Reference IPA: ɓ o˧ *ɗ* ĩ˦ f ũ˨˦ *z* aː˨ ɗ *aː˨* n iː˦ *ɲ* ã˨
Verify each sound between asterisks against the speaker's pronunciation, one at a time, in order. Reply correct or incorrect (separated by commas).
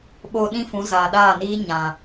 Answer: correct, correct, incorrect, correct